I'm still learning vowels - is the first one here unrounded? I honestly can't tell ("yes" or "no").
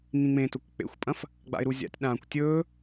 yes